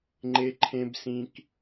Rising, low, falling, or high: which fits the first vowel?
high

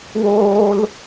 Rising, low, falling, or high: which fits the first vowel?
high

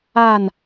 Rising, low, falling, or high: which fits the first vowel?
falling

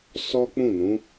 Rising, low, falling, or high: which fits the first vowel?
high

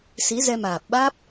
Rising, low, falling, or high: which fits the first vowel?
rising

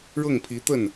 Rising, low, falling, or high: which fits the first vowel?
falling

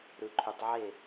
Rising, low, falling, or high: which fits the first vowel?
low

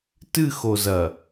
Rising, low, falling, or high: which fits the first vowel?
falling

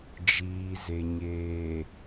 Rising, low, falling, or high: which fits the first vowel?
low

